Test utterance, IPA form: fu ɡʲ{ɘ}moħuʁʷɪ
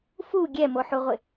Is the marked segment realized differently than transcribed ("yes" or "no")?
yes